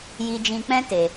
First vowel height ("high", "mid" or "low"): high